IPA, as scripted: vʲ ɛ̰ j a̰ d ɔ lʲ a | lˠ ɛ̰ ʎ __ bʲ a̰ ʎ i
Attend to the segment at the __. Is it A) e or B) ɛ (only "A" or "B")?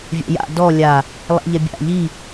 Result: B